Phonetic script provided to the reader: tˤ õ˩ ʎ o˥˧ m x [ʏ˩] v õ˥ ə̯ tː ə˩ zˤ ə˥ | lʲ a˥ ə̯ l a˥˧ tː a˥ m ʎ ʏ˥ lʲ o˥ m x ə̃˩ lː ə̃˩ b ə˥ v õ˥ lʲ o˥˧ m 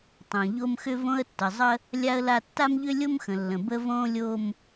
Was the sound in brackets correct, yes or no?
no